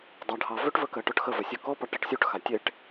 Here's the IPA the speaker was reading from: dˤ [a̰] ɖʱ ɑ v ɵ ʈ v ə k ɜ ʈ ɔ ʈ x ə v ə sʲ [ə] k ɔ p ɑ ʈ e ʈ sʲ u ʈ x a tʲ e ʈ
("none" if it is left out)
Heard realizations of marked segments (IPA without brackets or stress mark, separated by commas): a, ɵ